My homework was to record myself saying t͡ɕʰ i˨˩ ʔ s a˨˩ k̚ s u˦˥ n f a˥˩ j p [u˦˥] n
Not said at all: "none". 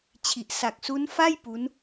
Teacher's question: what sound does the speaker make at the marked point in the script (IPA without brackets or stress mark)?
u˦˥